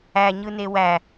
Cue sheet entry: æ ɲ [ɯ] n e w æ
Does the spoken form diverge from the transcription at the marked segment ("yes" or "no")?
no